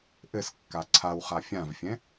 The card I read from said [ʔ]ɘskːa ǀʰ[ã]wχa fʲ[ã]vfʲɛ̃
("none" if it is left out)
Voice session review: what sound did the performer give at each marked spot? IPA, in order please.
ʔ, a, ã

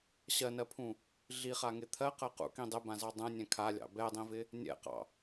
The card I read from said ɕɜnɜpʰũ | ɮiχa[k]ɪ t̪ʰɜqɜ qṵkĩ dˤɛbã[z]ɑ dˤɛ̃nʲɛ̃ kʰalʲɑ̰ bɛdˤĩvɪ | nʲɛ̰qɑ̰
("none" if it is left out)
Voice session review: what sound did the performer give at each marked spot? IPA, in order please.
ŋ, z

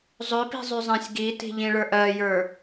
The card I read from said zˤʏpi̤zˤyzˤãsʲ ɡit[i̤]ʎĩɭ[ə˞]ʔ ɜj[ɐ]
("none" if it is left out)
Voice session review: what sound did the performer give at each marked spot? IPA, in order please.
i̤, ə˞, ə˞

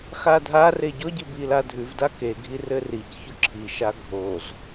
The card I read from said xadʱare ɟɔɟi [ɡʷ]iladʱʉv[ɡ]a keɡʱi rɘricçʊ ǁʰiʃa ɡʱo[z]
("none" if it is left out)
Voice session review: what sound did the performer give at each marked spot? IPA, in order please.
b, d, z

